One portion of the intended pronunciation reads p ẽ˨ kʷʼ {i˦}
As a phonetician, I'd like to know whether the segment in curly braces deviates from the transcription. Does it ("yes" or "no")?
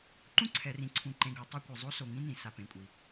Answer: yes